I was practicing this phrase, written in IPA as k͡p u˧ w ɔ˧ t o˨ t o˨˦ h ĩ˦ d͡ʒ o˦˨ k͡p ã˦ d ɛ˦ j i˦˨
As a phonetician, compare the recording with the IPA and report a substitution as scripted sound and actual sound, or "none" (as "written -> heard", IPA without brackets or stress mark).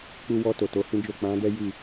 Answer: ã˦ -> ã˨˦